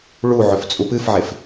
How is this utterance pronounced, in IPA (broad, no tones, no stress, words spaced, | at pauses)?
ɭuʕɵft͡sʼu pɨfʕef